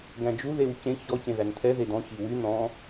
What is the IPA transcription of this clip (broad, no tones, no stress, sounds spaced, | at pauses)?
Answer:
ɡ æ̃ d͡ʒ u ð e w c ẽ ç ɔ c ẽ ð æ n t̪ʰ ɛ ð e d̪ ɔ̃ ç i w y n̪ ɔ̃